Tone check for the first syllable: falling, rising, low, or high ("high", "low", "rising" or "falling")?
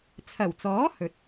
low